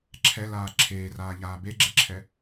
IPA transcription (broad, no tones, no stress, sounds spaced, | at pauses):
ǁʰ ɛ l aː ǁʰ eː r aː ʎ aː b e ɡ͡ǁ e ǁʰ ɛ